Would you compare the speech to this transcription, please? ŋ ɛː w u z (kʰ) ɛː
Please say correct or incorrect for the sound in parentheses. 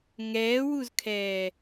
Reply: correct